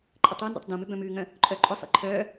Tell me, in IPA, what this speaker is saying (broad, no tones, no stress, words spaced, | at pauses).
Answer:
ǃʼətˤoːndɛ̰tˤ dõmʏ bœ̃mʉːŋœ̃ | ǃʼœːǃʼʊsˤḭ ǃʰœː